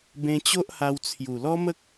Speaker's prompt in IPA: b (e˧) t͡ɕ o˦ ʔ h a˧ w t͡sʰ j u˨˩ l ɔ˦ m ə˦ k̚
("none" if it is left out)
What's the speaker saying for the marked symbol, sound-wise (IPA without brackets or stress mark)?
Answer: ẽ˧